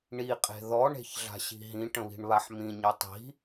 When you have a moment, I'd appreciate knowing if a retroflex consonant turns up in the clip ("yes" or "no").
yes